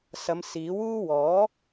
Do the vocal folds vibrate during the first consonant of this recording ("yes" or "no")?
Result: no